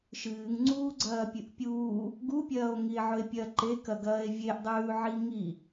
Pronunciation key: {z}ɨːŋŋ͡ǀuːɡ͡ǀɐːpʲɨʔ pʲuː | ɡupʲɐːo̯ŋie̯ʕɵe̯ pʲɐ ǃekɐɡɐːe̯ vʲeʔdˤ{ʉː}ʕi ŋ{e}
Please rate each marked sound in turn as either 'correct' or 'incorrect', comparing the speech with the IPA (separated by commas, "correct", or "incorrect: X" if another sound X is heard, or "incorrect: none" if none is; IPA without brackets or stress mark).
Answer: incorrect: ʃ, correct, incorrect: i